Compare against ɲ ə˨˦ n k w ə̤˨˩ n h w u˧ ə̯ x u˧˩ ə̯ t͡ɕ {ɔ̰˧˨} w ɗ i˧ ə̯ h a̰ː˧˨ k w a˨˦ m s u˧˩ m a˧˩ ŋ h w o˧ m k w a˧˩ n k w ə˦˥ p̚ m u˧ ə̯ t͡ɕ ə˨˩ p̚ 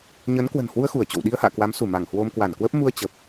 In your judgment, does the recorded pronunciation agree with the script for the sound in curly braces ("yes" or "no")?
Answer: no